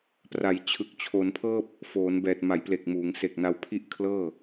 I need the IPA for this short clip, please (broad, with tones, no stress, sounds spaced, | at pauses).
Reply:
p r a˩˦ j t͡ɕʰ ɯ˨˩ k̚ t͡ɕʰ o˩˦ n pʰ ɤː˥˩ p̚ | f oː˩˦ n b ɛː˨˩ t̚ m a˩˦ j p l e˨˩ k̚ m uː˩˦ ŋ s e˨˩ k̚ n a˧ w pʰ i˥˩ ʔ kʰ l ɤː˥˩